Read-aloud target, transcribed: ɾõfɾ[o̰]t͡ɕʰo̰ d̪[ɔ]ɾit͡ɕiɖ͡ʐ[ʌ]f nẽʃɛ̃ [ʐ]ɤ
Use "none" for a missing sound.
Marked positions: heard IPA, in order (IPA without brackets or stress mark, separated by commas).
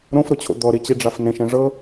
o, ɔ, a, ʐ